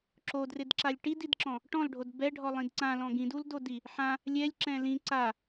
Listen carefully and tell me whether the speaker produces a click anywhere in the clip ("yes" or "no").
yes